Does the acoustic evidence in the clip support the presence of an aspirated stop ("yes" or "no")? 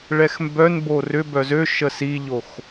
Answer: no